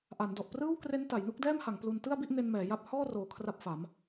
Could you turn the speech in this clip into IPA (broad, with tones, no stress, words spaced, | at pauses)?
ʔa˩˦ndɔ˨˩ʔprɯː˥˩wkre˦˥n ta˩˦jnu˦˥k̚dɛː˥˩mha˩˦ŋ plu˧n tɯ˥˩a̯bi˥˩ʔne˧n mɛː˩˦ja˦˥p̚ hɔː˥˩roː˨˩ kʰra˥˩p̚fa˩˦m